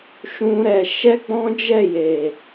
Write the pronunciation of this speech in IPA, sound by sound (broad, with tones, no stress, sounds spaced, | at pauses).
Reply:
ʃ ũ˦ ɾ ɛ˧ ʃ ɛ˦ ɡ͡b ɔ̃˦ d͡ʒ ɛ˦˨ j e˨